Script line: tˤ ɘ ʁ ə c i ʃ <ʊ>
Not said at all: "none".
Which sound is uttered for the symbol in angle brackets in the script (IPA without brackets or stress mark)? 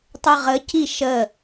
ə